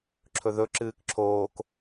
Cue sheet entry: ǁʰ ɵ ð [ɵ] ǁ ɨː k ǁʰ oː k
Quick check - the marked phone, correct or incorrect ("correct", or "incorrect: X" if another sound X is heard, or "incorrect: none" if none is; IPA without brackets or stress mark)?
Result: correct